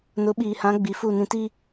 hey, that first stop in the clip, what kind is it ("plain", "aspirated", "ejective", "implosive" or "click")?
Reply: implosive